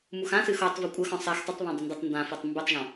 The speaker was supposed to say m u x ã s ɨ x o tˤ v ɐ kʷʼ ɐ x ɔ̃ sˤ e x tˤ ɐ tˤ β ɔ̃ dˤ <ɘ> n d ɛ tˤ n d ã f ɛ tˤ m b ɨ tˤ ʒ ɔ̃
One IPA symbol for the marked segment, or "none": ɘ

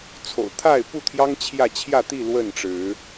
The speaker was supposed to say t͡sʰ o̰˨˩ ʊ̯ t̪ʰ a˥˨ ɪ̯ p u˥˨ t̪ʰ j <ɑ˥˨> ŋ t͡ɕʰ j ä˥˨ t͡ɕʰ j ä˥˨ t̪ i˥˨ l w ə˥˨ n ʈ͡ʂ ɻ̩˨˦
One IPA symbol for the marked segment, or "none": ɑ˦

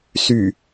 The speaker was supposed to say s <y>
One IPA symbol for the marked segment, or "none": y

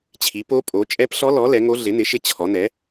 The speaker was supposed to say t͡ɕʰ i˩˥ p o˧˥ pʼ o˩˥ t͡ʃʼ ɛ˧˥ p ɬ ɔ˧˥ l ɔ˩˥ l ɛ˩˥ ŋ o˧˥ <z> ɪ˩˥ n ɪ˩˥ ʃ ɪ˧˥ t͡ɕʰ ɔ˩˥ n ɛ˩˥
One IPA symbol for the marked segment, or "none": ɮ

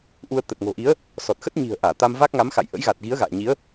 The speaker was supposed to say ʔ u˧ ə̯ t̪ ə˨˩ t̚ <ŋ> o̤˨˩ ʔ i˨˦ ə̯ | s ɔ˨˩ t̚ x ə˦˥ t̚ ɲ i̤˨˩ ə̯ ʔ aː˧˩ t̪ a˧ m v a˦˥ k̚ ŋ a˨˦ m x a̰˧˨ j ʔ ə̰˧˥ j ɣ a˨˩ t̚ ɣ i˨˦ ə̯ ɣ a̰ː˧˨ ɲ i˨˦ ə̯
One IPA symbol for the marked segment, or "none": ŋ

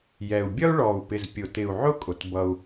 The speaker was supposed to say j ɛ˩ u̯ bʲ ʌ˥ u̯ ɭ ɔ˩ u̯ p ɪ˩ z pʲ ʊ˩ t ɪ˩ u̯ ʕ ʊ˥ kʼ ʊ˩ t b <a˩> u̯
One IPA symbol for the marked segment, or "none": ʌ˩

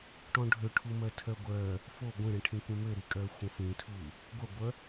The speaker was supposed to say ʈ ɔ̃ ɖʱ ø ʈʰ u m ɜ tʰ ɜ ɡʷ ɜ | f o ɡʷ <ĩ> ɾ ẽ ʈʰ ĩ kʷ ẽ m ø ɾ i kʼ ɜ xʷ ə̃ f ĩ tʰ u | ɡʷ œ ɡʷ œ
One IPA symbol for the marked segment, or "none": ẽ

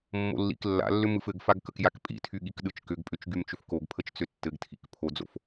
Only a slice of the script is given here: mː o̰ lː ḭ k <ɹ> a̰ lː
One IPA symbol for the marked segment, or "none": lː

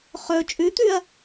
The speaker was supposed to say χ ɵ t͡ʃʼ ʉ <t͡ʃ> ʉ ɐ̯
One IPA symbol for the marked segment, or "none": t̪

